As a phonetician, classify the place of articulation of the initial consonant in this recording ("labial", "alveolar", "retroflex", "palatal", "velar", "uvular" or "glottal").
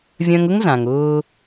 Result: labial